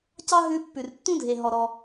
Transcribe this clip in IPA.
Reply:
c ɑ˥ ɦ ʉ˧ pː ʉ˩ r tː ũ˥ dʱ e˩ ɦ ɔ˩ ɾ ɔ˩

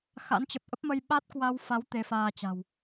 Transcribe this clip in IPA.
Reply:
x a̰˧˥ n t͡ɕ ə˨˩ p̚ ʔ ə˦˥ p̚ m ə˧ j ɓ a˦˥ t̚ k w a˧ w f a˨˦ w t̪ e˨˦ f aː˧ t͡ɕ a̤˨˩ w

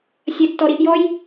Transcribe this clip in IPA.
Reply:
sʲ ɐ tː ɔ ɾ i ʔ j ɔ j

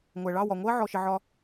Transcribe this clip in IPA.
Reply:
ŋʷ æ˩ ɭ ɑ˥˩ w ɒ˩ ŋʷ ɜ˥ ʕ ɔ˧ ʃ ɪ˧ ʕ ɒ˥

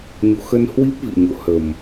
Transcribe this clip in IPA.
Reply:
ɲ o̰˧˨ x ə˧ n h w i˦˥ p̚ v ḭ˧˨ ɲ o̰˧˨ h ə˨˩ m

